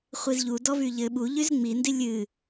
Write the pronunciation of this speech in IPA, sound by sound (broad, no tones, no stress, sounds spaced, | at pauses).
χʷ i z ʎ u d ɔ v y ʎ ɘ ɓ u ʎ y z ŋ͡m i n d i lʲ ɨ